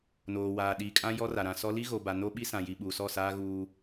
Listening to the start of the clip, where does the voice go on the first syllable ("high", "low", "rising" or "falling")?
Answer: low